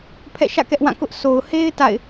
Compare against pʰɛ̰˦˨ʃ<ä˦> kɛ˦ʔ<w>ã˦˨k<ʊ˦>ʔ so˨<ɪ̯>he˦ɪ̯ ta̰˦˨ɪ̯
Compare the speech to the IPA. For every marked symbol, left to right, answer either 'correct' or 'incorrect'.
incorrect, correct, correct, incorrect

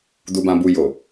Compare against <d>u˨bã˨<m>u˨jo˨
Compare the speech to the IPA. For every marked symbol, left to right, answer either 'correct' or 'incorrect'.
correct, incorrect

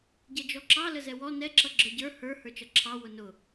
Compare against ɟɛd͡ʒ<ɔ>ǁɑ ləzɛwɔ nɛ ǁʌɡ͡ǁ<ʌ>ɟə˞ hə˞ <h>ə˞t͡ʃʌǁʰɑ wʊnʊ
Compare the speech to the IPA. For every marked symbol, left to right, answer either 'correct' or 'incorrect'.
correct, incorrect, correct

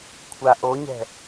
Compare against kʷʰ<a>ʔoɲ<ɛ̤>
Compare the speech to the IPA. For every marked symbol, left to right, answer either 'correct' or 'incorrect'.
correct, correct

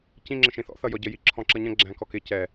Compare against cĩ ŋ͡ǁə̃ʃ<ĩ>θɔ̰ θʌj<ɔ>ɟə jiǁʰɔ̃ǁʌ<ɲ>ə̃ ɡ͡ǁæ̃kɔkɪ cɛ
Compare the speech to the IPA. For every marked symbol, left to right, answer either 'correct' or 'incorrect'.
correct, correct, correct

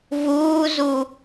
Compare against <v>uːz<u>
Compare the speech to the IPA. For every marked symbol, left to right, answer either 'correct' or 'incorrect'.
correct, correct

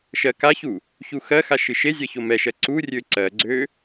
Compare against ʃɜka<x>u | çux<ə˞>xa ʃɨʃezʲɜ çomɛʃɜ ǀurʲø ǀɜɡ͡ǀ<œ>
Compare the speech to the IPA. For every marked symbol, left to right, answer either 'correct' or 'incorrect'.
incorrect, incorrect, incorrect

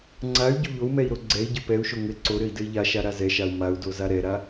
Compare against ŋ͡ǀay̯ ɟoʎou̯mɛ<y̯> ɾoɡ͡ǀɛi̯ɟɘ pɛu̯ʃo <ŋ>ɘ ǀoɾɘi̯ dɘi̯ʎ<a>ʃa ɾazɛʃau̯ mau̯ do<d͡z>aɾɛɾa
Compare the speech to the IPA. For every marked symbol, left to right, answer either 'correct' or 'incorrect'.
incorrect, correct, correct, incorrect

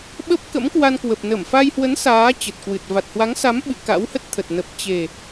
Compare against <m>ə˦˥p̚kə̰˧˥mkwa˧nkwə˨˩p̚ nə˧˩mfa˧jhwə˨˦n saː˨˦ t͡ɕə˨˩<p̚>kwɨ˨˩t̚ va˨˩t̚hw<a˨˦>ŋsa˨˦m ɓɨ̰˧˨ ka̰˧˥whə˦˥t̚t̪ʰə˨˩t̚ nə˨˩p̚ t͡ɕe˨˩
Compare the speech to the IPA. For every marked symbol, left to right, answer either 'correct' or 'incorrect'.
incorrect, incorrect, correct

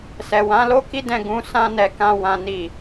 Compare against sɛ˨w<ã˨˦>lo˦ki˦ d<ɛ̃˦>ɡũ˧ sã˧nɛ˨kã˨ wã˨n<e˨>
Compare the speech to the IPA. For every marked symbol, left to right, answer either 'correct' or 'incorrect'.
correct, incorrect, incorrect

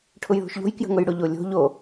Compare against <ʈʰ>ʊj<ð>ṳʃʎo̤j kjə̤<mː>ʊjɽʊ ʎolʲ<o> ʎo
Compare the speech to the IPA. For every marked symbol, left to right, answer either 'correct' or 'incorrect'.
correct, correct, incorrect, incorrect

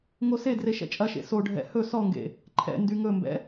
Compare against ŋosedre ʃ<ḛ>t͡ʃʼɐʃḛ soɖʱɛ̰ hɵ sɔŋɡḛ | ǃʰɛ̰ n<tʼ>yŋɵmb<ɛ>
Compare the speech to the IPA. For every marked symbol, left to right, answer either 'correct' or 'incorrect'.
incorrect, incorrect, incorrect

